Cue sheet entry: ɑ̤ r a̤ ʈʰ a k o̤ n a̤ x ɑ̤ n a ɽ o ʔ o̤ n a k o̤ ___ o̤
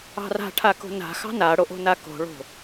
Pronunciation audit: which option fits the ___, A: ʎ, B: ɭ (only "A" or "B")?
B